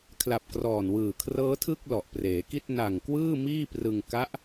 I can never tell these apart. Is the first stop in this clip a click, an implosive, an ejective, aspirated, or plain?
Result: aspirated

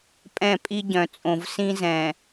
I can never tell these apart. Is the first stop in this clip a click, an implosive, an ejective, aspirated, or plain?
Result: ejective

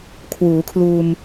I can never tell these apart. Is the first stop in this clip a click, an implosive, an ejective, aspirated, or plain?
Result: aspirated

